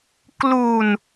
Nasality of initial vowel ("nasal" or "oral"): oral